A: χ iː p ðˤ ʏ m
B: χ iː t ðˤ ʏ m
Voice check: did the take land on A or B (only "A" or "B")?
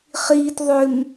B